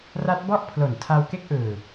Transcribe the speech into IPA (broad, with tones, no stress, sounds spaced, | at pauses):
r a˦˥ t̚ b ɔ˥˩ ʔ pʰ l o˩˦ n tʰ a˧ w k e˥˩ k̚ ʔ ɯː˨˩